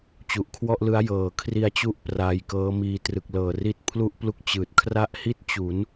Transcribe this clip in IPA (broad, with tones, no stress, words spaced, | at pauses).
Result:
t͡ɕu˨˩ʔkʰwɔ˥˩ʔlɯ˦˥a̯ jɤː˨˩ kʰri˧a̯t͡ɕu˦˥ʔ praː˧jkɤː˦˥miː˧ trɯ˨˩k̚lɤː˨˩ri˦˥t̚ pʰlu˥˩ʔplu˥˩k̚ t͡ɕɯː˨˩t̚ kʰra˥˩ʔhi˥˩t̚ t͡ɕu˩˦n